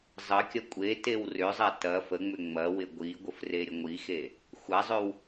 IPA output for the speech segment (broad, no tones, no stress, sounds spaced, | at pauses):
zˤ ə kʲ ɐ kʷʼ e t e w r ʏ zˤ a t ɐ f ə ŋ͡m ʏ ŋ͡m ɐ w ɪ ɡʷ i ɡʷ ə f r e ɾʲ ə ŋʷ i x e | xʷ a zˤ ʏ w